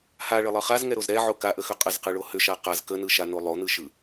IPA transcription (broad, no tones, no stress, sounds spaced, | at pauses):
h a ɭ ə lˠ ɯ χ a z ŋ ɛ ɾ o z ɾ ɛ ʕ o k a ʔ ə x ʏ qʼ ə z q ɯ ɭ o h ʏ ʃ a q a z k ə n ɯ ʃ a n o lˠ o n ɯ ʃ ɯ